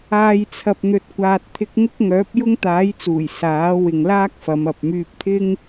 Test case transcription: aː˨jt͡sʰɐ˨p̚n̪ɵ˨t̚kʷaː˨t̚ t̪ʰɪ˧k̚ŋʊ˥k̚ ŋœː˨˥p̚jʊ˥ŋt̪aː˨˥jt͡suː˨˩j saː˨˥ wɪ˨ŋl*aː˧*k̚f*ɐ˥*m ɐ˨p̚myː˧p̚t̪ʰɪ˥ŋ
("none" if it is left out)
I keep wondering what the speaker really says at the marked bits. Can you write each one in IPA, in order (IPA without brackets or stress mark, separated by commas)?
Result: aː˥, ɐ˨˧